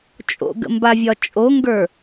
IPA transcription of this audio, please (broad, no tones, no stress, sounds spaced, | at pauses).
t͡ʃʼ o̰ ɡ ə̰ m b a vʲ ɒ t͡ʃʼ o ŋ ɡ ə˞